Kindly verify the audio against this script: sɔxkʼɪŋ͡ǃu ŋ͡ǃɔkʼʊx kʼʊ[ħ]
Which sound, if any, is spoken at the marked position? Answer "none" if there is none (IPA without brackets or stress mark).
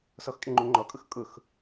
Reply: x